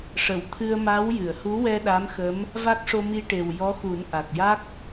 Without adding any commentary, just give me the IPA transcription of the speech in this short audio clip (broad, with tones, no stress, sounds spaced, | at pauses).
ʂ ə˨˩˨ w t̪ʰ ɨ˧ ə̯ m a˧˥ w j ɨ˨˩˨ ə̯ h u˧˥ w ɛ˧ ɗ a˧˥ m x ə˧˥ m | v a˦˥ k̚ ʂ o˧ m i˧ ʈ e˨˩ w j ɔ˧˥ x u˨˩˦ n ʔ a˨˩ k̚ j a˦˥ k̚